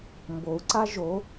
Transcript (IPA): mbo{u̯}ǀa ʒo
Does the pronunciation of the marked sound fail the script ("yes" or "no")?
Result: no